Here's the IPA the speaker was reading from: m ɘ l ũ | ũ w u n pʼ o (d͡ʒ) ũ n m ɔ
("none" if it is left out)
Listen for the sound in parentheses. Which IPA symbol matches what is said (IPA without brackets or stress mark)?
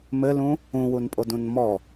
d